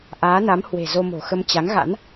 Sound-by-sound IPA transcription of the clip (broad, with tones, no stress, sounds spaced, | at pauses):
ʔ aː˨˦ n a˨˦ m h w e̤˨˩ z o˧ m o̤˨˩ x ə˧ m t͡ɕ a˨˦ ŋ ɣ a̰˧˥ n